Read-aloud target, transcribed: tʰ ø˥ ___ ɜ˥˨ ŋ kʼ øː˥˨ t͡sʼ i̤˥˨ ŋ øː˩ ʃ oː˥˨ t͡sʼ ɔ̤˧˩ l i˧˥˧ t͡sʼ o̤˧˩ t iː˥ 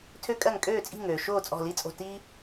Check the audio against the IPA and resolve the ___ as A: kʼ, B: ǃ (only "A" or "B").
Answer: A